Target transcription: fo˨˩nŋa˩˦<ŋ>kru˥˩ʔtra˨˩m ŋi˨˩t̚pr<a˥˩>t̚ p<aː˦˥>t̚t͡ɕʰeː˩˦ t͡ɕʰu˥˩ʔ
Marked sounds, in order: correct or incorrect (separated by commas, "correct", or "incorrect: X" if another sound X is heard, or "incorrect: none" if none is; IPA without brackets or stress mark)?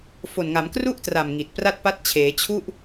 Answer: incorrect: m, correct, incorrect: a˦˥